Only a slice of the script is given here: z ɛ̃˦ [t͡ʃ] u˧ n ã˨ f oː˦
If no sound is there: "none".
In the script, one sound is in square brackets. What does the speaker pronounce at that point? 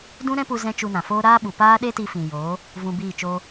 t͡ʃ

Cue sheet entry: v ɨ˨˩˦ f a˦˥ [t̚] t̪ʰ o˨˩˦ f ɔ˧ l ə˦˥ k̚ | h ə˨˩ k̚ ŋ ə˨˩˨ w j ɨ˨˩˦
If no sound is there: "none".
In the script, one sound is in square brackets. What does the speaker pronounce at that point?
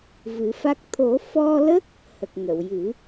k̚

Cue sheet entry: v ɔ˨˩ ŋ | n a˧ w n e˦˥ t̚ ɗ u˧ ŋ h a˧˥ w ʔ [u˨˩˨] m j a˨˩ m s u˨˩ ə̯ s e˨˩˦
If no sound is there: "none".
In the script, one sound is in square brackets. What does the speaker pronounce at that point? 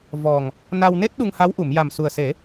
u˨˩˨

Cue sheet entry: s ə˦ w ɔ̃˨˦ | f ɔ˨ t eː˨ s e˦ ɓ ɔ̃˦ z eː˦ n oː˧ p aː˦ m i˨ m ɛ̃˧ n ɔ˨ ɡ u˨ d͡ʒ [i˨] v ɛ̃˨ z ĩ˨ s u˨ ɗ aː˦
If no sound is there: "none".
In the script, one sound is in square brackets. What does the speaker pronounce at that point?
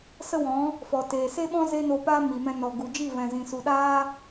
i˦˨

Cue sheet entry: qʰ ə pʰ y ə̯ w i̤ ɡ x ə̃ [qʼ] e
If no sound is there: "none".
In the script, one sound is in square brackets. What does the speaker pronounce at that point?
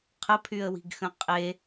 qʼ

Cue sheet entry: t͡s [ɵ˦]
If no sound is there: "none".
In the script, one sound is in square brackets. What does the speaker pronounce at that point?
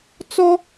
ɔ˦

